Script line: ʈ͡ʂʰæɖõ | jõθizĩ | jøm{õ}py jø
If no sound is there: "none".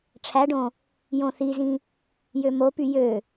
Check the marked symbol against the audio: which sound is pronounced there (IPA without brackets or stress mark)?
o